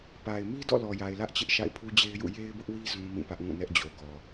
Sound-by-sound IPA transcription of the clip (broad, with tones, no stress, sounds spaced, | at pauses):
p a˨ ɪ̯ m i˦ d ɔ̰˦˨ l ɔ˨ j a˨ ɪ̯ l ä˦ ʔ t͡ɕ ɪ˦ ʔ ʃ a̰˦˨ ɪ̯ pʰ u˦ d͡ʑ e˦ ɪ̯ j ṵ˦˨ j e˦ ɪ̯ b ʊ˦ ʔ w i˦ z ũ˦ m ĩ˦˨ p ä˦ ʔ ŋ ũ˦˨ n ɛ˦ ʔ d͡ʑ o˨ ɡ ɔ˨